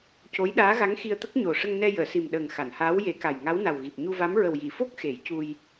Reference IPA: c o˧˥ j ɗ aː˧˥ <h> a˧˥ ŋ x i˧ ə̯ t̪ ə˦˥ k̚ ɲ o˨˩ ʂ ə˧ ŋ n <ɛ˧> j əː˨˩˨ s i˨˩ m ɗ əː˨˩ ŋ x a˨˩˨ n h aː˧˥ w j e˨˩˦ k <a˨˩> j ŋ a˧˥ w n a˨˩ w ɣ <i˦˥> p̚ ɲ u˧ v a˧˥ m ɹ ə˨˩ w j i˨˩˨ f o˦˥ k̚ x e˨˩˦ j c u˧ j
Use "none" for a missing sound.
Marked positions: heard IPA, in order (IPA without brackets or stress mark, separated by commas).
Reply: ɣ, ɛ˧, a˨˩, i˨˩